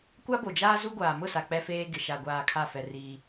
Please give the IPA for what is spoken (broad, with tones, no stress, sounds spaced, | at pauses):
kʷ a˦ b o˨ d͡ʒ aː˦ z u˦ ɡʷ aː˨ m ʊ˦˨ s a˨ k͡p ɛ˦ f eː˦ ɡ ɪ˨ ʃ a˨ ɡʷ aː˨ kʰ a˦˨ f ɛ˨ r iː˦